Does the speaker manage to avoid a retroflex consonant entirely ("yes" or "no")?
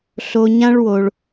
no